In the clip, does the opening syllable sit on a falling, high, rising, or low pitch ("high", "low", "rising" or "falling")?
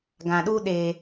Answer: low